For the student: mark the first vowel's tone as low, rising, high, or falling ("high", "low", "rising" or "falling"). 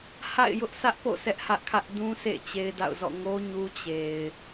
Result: falling